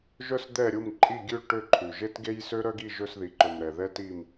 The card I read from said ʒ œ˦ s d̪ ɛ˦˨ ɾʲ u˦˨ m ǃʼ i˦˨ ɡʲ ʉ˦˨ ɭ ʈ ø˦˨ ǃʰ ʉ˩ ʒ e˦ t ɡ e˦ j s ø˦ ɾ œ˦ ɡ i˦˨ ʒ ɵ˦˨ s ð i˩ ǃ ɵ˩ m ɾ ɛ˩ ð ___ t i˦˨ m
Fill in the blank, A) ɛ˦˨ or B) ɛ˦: B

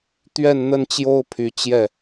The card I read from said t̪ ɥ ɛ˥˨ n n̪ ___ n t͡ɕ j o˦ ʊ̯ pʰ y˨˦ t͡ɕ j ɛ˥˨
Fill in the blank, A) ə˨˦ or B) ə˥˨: B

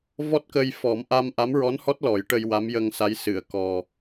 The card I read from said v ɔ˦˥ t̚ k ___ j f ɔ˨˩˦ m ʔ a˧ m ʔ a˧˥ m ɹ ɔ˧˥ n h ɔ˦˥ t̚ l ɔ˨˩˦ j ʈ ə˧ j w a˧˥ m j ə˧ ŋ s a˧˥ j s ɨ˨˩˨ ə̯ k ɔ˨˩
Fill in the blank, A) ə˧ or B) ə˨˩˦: A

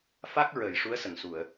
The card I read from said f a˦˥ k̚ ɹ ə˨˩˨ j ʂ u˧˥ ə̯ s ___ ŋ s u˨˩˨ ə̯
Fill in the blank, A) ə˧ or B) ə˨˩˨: B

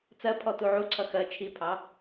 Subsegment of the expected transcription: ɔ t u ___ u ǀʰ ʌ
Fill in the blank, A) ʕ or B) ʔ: A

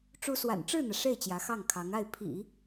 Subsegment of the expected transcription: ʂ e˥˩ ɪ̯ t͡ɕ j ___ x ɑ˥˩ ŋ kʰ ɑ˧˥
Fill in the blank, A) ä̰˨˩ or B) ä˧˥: B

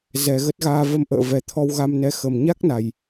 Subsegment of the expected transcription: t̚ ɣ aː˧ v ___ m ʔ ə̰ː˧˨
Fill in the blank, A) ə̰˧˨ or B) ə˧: B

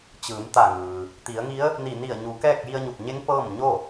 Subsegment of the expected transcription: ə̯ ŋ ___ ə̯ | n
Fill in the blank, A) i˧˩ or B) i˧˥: B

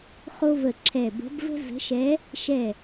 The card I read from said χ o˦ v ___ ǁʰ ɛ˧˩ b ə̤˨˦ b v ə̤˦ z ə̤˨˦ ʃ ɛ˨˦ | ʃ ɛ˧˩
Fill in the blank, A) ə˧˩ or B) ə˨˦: A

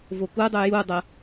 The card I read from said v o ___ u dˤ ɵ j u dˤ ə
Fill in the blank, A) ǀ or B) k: B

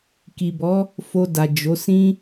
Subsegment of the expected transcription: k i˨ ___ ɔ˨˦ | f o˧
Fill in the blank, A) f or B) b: B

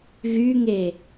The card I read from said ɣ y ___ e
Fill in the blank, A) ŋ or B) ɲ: A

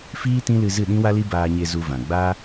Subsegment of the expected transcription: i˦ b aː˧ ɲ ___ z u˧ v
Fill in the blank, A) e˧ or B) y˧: A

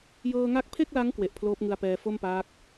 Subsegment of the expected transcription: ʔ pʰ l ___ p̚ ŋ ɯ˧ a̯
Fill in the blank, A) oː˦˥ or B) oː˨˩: A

